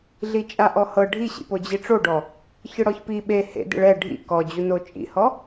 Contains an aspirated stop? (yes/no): no